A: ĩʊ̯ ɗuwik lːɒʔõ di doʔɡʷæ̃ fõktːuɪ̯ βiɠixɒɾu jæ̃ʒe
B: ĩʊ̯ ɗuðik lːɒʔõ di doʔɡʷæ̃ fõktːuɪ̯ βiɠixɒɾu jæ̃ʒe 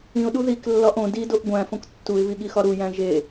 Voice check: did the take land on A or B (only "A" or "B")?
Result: B